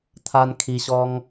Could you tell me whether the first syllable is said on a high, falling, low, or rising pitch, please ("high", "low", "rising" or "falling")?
high